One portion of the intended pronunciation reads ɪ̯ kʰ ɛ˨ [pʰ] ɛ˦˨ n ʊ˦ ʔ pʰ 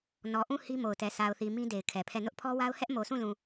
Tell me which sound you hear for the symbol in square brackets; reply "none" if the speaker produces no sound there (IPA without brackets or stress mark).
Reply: pʰ